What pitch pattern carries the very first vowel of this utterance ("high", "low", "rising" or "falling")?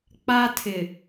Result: high